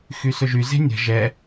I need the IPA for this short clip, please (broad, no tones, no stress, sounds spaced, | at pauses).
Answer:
x y s ɵ ʒ y z e̤ nʲ ə̤ ʒ ɛ